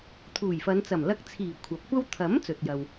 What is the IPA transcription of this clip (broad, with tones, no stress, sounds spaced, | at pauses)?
t̪ʰ uː˨˩ j f ɐ˨˧ n t͡s ɐ˨˩ m l ɐ˧ k̚ t͡sʰ iː˨˩ kʷʰ ɐ˨˥ p̚ kʷ ɐ˥ w t̪ʰ ɐ˨˥ m t͡s ɵ˨ t̚ j ɐ˨ w